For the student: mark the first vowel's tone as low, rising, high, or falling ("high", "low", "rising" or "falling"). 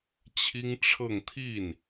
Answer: high